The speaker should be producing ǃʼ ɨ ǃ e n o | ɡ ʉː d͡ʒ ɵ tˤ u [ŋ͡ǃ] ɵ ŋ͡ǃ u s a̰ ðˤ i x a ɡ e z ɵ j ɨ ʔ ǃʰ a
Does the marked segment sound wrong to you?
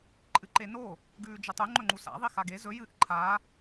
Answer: no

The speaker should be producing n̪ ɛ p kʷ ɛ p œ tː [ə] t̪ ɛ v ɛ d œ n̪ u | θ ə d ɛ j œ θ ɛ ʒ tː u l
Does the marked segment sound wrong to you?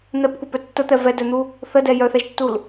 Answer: no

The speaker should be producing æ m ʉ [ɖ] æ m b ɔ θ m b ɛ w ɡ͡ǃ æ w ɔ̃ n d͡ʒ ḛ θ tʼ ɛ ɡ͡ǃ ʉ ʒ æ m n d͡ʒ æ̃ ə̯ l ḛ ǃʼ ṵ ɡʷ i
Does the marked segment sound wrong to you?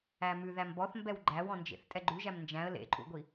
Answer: yes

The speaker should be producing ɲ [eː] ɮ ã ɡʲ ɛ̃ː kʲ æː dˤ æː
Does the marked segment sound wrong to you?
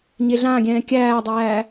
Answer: yes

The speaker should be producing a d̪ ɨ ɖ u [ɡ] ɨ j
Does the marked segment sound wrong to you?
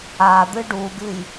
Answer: no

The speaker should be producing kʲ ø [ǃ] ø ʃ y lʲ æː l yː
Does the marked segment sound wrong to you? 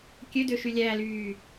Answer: yes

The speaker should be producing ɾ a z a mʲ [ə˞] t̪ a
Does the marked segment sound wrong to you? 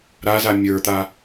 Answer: no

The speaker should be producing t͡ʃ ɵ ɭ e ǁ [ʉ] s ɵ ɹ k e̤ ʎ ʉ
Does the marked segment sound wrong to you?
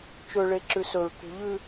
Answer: no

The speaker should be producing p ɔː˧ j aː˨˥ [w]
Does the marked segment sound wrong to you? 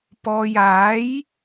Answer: yes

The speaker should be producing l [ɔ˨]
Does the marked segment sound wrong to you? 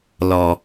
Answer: no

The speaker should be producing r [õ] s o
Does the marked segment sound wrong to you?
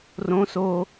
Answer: no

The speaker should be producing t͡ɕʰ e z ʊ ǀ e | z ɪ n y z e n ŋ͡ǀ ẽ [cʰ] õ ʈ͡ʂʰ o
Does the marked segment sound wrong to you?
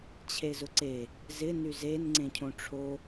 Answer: no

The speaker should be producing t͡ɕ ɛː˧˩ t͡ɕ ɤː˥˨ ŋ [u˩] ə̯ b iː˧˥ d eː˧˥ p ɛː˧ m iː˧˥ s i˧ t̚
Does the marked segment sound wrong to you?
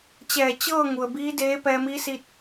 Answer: no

